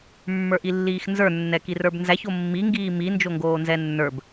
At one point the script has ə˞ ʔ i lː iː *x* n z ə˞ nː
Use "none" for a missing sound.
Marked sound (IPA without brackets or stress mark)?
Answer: x